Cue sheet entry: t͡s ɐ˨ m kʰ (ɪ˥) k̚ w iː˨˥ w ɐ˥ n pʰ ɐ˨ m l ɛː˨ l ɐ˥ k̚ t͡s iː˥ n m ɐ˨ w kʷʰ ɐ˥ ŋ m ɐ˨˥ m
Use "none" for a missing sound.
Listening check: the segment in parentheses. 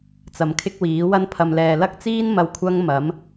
ɪ˥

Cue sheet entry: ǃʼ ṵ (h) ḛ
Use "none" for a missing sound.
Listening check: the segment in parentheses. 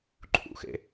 x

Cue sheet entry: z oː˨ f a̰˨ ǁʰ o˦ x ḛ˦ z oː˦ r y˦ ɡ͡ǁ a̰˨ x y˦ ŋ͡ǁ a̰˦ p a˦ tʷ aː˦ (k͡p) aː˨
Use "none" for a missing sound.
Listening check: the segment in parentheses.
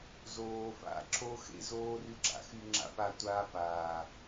p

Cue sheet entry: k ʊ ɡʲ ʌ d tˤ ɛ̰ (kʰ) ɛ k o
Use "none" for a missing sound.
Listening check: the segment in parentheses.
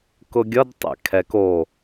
kʰ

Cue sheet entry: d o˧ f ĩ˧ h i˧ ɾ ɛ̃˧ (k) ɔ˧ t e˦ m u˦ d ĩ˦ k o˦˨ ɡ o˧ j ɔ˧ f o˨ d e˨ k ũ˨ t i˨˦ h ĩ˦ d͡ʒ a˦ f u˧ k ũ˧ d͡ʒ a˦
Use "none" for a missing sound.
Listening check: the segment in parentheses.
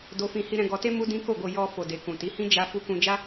ɡ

